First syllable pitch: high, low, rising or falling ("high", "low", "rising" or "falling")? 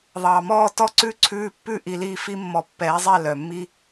low